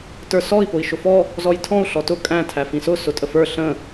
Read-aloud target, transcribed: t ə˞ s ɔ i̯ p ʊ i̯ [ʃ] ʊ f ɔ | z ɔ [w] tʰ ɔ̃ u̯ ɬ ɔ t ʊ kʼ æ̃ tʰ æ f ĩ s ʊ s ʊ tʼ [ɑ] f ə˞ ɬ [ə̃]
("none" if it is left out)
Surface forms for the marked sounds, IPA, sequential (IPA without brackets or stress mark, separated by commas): ʃ, j, ə, ə̃